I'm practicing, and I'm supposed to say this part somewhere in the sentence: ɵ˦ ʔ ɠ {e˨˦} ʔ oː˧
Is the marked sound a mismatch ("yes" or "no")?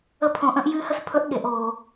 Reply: no